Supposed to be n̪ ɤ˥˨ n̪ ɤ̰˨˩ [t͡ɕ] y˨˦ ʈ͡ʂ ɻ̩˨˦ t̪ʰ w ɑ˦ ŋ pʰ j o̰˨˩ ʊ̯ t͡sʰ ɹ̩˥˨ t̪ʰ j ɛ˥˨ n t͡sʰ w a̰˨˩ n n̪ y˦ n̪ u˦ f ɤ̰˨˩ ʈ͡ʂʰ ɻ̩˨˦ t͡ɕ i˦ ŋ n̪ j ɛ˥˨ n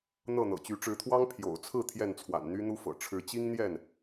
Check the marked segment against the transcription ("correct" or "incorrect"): correct